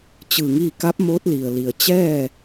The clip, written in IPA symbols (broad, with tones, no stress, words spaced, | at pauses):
t͡ɕɯː˧˩ŋiː˥˨ ka˧˥p̚ moː˧˥t̚li˩ə̯ li˩ə̯t͡ɕɛː˥˨